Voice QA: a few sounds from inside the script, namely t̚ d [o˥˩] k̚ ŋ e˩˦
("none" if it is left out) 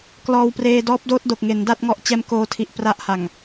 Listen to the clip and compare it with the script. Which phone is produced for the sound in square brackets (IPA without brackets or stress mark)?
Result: o˨˩